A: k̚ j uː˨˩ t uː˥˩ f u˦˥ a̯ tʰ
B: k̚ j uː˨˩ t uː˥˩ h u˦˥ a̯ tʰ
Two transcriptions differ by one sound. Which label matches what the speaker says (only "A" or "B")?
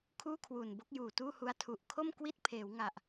B